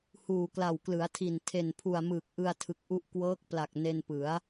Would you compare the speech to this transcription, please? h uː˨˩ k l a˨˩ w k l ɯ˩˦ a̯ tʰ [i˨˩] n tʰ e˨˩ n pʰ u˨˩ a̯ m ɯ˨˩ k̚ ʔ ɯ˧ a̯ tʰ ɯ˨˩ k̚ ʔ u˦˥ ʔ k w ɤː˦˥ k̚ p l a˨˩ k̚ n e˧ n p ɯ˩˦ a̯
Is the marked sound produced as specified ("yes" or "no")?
yes